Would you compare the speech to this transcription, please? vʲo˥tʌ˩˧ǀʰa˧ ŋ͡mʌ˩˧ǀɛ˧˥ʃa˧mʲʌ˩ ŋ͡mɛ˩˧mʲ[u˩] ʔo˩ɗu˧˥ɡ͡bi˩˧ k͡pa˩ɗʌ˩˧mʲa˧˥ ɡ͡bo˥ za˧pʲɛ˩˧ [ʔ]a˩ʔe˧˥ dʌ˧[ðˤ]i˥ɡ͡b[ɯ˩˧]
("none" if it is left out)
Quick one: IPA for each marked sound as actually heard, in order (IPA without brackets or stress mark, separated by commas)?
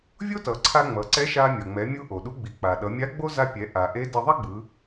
u˧, ʔ, ðˤ, ɯ˩˧